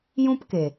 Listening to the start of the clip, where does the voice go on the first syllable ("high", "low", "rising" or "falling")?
high